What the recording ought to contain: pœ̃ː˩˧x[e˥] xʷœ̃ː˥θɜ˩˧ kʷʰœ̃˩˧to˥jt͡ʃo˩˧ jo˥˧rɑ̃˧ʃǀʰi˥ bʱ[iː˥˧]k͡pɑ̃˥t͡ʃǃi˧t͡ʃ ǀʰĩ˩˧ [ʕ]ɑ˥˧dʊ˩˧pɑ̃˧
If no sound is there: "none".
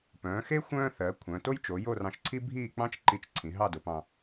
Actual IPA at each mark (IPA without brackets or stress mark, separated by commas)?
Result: e˥, iː˥˧, ɦ